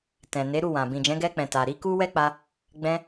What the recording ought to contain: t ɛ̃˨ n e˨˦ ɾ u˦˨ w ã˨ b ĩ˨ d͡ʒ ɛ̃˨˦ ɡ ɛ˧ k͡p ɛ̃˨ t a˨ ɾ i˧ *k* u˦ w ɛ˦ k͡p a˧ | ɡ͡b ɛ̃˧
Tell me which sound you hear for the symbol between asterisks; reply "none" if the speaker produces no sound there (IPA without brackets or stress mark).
k